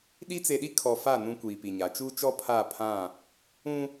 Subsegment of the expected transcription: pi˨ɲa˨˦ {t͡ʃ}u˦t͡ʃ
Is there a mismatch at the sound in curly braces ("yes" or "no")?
no